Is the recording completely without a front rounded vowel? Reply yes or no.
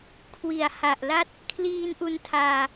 yes